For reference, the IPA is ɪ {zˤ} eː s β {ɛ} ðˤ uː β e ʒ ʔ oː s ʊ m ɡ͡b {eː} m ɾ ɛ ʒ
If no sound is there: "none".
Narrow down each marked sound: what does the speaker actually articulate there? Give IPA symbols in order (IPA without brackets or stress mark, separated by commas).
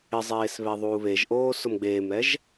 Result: zˤ, ɛ, eː